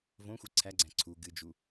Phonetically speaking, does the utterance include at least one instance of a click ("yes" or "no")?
yes